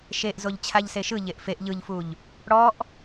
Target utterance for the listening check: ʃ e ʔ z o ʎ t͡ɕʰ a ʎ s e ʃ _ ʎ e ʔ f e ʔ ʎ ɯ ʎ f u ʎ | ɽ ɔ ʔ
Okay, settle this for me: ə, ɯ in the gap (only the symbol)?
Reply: ɯ